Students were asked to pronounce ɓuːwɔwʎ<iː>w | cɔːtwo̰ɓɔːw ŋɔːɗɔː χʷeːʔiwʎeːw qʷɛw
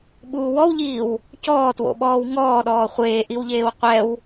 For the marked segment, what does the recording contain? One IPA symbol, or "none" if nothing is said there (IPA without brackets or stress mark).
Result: iː